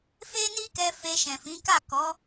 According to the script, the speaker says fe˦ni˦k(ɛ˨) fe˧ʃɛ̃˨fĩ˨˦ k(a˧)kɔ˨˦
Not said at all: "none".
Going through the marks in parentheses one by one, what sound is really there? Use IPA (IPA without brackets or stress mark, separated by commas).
ɛ˧, a˦˨